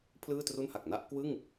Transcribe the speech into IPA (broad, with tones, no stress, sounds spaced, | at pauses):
pʰ l ɯː˥˩ t r u˥˩ n h a˨˩ k̚ n a˥˩ ʔ k w ɯ˥˩ ŋ